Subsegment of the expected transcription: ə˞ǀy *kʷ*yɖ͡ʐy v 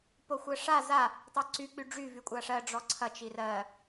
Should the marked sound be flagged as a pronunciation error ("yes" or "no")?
yes